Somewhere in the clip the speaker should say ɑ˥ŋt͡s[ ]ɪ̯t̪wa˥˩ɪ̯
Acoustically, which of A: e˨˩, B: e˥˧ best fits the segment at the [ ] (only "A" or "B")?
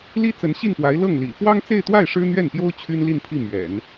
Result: B